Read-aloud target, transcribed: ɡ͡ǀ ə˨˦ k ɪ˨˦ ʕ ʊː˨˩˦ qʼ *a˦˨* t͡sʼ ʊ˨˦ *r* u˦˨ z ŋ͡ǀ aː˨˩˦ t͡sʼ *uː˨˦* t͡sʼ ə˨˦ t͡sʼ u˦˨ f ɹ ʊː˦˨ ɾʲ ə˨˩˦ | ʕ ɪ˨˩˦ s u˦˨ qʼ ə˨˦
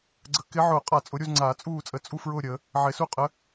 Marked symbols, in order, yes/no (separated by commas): no, no, no